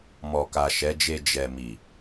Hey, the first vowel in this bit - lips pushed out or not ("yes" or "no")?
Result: yes